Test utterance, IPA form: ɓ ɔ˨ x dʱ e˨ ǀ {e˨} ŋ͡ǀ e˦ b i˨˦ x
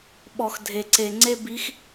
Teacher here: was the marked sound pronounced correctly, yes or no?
yes